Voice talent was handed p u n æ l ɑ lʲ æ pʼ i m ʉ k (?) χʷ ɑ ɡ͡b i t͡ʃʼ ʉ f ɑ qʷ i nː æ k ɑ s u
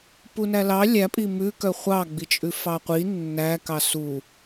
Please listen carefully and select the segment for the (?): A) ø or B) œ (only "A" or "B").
B